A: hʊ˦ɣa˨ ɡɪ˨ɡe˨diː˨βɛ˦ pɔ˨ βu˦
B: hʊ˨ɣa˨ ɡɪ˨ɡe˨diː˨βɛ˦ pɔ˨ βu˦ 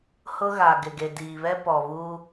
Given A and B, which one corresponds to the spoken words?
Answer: A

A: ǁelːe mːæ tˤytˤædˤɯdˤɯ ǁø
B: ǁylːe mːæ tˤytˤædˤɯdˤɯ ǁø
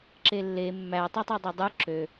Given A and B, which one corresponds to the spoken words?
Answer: A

